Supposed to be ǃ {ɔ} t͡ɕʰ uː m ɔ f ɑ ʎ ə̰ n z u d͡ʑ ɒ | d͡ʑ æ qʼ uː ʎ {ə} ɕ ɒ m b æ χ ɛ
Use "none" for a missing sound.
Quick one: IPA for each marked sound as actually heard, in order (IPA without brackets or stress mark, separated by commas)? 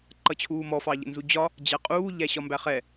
ʌ, æ